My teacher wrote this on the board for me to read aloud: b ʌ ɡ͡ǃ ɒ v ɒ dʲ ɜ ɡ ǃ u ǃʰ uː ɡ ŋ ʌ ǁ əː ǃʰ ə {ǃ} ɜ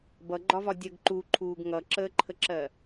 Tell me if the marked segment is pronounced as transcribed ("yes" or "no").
no